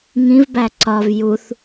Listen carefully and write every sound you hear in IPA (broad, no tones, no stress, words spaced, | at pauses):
ŋĩvbæ ǀɒv juθ